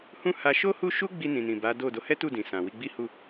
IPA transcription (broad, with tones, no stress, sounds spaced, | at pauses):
h ũ˦ h a˧ ʃ o˦ h u˦ ʃ u˦ ɡ͡b i˧ n ĩ˨ n ĩ˨ b a˨˦ d o˦˨ d o˨˦ h ɛ˦ t u˦˨ d ĩ˨ s ã˨ w i˧ ɡ͡b i˦ h u˦˨